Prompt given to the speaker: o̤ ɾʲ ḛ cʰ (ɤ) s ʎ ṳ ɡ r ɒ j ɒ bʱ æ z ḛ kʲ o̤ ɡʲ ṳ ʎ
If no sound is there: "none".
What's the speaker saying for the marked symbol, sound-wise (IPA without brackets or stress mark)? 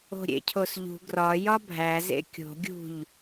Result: o